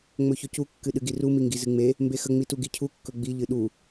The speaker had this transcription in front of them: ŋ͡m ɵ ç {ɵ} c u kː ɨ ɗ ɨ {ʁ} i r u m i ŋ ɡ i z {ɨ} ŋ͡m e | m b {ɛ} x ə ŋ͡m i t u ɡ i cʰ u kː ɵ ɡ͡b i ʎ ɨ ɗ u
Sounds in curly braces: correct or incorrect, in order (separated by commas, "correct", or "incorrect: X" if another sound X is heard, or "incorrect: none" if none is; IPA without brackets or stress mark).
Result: correct, incorrect: ɡ, correct, incorrect: e